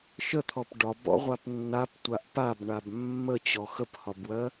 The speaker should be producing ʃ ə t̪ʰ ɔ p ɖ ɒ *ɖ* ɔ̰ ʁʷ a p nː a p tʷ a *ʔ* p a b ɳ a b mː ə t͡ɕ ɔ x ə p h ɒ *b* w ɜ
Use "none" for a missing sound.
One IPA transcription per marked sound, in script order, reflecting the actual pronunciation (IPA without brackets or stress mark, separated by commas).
b, ʔ, b